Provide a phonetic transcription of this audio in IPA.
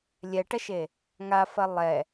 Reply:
lʲɛʈɐʃe | ŋafɐ lˠɛ

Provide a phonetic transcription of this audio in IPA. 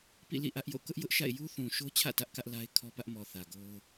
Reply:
pḭ˦˨lḭ˦˨ ʔä˦ʔjo̰˦˨ kʊ˦ʔjʊ˦ʔʃa̰˦˨ɪ̯ ju˦θũ˨ʃo˦t͡ɕʰä̰˦˨ tä˦ʔkä˦ʔla˦ɪ̯ kʰɔ˦pä˦ʔmɔ˨ θä˨ɡo˦ʊ̯

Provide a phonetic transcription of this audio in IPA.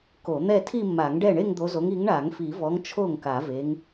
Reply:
ko˨˩˦n̪ɛ˥˧ tʰi˥˧mːa˨˩˦ŋɖɛ˥˩ ɳe˥˧ŋd̪o˨˦zo˨˦ŋ i˨˦ŋɳa˨˩˦ŋfi˨˩˦vɔ˨˦ŋ t͡ʃʰo˥˩ŋka˨˩˦ve˨˦ŋ

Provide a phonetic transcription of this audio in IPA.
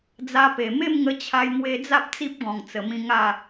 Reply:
d͡za˧pe˨˩ me˥˧mŋə˧ t͡ɕʰa˧jŋwe˧d͡za˦p̚ t͡si˦p̚ɡɔ̃˨˩ŋt͡sə˨˩mĩ˧ ŋa˥˧

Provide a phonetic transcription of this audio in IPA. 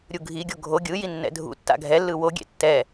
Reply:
ɾʲuɡʱiɡʲo ɡʱo ɡʲɯ jinːɛ̰dʱṵtːa̰ ɡʱɛlːɯ woɡʲḛ tːɛ

